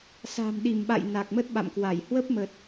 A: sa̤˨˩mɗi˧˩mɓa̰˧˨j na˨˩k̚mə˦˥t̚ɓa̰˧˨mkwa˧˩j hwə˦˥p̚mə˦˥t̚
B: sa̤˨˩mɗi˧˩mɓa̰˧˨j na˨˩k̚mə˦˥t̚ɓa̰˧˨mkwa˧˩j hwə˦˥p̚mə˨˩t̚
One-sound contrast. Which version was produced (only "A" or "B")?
B